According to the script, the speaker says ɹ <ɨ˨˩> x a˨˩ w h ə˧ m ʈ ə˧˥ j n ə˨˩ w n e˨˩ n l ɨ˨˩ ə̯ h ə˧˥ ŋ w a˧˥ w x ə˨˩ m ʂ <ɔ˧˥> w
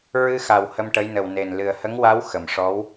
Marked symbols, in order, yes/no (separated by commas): no, yes